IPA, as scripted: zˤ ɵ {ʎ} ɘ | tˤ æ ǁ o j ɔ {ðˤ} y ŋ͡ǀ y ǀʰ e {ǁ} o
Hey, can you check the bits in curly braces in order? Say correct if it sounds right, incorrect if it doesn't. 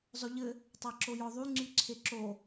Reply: correct, correct, correct

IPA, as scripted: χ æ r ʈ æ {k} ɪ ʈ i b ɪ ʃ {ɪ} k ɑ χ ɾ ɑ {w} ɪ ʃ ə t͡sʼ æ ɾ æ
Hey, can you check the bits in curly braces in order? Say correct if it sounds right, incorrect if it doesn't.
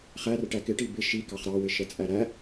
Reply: correct, incorrect, correct

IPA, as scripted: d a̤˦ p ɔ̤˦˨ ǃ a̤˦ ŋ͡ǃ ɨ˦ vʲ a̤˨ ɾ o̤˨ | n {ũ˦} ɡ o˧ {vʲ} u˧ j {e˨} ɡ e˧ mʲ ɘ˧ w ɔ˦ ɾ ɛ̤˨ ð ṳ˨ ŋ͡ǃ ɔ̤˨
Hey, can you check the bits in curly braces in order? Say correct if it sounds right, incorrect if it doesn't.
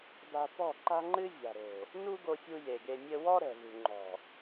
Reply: incorrect, incorrect, correct

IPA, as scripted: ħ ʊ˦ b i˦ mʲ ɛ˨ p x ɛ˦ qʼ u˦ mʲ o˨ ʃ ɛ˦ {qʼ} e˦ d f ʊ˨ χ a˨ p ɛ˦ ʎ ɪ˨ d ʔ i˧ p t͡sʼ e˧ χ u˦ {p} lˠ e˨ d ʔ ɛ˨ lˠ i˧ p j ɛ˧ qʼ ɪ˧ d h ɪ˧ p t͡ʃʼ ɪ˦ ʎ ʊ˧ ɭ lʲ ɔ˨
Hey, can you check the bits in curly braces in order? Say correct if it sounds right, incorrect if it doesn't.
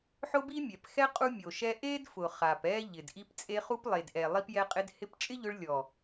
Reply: incorrect, correct

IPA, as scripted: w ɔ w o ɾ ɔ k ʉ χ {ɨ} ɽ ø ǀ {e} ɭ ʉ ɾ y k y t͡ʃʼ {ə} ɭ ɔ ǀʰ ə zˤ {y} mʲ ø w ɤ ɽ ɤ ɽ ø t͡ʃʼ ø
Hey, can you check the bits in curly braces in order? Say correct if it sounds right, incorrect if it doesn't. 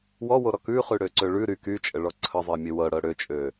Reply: incorrect, incorrect, correct, incorrect

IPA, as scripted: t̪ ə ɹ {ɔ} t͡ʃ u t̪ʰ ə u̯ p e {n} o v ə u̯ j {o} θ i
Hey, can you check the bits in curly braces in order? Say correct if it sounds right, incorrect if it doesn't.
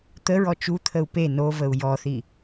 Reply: correct, correct, incorrect

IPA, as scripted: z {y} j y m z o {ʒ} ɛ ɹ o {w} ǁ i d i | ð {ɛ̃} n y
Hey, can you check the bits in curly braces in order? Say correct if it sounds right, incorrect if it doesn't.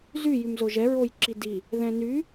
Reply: correct, correct, incorrect, correct

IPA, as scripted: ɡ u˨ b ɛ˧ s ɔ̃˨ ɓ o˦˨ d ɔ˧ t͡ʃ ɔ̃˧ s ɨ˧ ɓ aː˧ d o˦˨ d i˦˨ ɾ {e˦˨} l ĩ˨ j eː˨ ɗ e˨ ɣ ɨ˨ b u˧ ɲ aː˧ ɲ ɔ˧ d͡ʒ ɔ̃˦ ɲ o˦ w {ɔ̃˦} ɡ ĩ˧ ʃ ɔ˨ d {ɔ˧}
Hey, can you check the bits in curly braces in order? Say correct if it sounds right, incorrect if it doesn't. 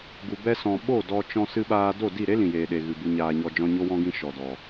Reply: incorrect, correct, incorrect

